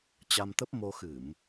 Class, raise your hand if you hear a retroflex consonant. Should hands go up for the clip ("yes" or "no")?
no